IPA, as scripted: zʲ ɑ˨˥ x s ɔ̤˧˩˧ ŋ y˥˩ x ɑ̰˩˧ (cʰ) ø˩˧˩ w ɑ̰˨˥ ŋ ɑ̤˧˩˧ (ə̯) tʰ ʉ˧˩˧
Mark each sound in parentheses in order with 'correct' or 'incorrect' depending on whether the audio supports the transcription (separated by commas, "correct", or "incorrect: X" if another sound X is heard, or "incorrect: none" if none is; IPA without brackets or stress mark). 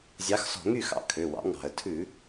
incorrect: kʰ, correct